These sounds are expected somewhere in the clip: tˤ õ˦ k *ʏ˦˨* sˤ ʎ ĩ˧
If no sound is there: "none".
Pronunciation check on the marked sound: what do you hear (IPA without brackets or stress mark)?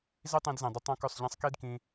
ʏ˦˨